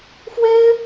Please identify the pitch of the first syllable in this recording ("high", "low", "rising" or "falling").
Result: high